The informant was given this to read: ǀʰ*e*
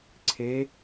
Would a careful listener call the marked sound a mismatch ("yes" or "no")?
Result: no